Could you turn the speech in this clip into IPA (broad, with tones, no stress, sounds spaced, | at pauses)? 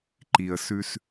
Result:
ǃ i˨ ə̯ s ʉ˦ s